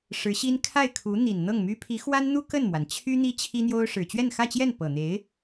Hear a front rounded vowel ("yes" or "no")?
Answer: yes